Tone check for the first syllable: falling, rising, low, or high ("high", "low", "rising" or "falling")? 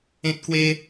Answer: high